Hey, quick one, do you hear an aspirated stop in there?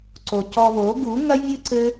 no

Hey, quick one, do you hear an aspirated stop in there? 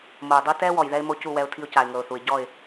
yes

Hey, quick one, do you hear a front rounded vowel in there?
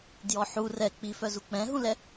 yes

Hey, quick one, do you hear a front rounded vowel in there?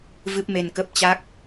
no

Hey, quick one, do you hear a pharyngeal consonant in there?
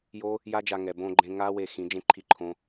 no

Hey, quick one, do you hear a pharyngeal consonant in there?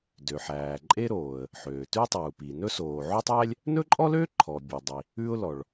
yes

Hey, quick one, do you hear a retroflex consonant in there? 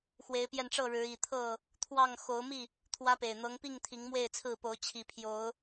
yes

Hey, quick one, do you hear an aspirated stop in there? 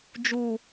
no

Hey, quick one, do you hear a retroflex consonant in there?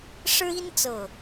yes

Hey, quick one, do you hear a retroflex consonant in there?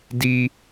no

